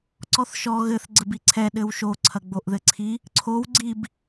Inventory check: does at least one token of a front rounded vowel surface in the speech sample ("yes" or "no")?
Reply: no